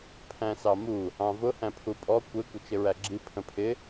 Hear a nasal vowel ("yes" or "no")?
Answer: yes